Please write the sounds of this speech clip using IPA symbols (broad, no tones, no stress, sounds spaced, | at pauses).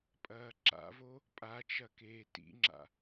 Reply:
pʼ ɐː ǁ a̰ v o | pʼ a t͡ʃ ɐ k eː t ḭ ŋ͡ǁ a̰